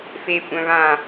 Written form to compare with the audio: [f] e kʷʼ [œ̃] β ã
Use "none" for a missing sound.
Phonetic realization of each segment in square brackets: f, œ̃

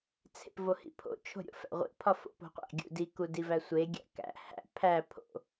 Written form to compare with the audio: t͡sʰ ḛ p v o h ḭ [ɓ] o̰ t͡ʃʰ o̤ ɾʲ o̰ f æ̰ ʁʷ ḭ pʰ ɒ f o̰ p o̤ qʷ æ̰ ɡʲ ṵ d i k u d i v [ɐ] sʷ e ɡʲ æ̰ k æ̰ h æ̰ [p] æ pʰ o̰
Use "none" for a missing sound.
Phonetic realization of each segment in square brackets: pʰ, æ, pʰ

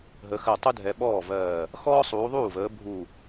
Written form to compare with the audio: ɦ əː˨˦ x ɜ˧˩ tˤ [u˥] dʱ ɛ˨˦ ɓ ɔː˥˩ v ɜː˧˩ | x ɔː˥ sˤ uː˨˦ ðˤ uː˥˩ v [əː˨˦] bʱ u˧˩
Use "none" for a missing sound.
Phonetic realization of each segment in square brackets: u˥, əː˨˦

